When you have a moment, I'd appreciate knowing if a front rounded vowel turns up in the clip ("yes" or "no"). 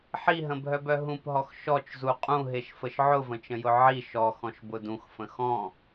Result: yes